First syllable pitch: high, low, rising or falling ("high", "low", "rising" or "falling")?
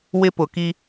high